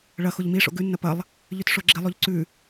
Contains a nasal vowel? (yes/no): no